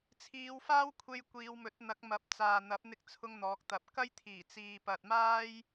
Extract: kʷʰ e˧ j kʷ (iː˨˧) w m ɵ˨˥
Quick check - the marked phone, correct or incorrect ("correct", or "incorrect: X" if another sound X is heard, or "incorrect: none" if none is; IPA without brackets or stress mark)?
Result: correct